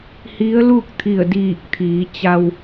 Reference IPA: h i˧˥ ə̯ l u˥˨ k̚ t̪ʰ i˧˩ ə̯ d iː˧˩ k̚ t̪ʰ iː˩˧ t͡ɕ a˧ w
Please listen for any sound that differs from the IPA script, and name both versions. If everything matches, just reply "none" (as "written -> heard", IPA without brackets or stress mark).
none